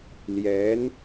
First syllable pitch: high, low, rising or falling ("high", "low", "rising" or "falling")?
rising